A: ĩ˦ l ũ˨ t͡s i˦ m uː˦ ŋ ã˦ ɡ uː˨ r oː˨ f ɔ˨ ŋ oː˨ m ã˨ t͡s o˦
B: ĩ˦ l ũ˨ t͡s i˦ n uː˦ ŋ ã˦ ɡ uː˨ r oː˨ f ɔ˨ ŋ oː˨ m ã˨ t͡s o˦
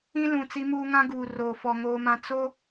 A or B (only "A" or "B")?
A